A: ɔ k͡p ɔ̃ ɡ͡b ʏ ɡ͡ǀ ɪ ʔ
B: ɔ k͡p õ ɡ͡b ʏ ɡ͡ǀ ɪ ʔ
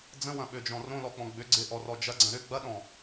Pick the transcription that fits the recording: A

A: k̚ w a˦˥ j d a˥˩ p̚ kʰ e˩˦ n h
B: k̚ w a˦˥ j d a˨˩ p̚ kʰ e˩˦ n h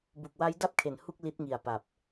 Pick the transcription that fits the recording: A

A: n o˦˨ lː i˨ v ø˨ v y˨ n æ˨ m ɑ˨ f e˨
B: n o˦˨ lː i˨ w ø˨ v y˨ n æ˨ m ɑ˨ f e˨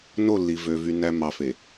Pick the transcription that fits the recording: A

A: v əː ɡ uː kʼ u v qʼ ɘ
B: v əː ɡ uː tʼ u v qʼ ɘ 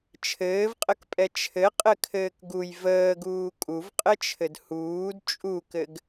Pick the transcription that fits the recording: A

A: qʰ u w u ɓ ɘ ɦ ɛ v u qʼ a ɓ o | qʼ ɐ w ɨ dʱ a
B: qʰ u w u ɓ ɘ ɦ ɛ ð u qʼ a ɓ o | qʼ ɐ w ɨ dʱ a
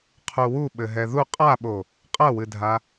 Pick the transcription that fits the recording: B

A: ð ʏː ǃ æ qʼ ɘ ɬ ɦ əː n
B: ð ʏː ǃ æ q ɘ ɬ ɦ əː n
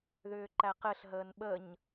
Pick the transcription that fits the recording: B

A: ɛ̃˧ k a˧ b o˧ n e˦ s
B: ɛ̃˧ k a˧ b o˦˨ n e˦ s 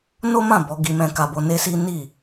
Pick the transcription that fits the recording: A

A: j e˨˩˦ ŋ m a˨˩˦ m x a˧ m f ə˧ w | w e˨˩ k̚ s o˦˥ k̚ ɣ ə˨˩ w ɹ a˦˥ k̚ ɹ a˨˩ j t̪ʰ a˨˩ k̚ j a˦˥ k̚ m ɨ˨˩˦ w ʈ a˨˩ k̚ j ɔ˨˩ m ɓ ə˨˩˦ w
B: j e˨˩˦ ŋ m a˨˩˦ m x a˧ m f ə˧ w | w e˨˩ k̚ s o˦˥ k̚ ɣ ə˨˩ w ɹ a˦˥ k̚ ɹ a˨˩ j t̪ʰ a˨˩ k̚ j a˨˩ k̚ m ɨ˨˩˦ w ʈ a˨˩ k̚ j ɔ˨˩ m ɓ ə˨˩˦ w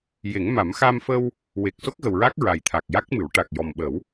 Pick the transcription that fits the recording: A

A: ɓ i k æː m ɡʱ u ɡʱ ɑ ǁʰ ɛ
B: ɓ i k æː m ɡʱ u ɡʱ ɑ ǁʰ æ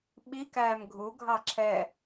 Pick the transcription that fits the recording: A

